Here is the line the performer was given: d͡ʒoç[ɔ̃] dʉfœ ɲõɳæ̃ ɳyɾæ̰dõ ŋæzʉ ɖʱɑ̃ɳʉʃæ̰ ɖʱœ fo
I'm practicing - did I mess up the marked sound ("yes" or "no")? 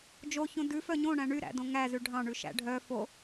yes